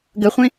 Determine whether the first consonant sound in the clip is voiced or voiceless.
voiced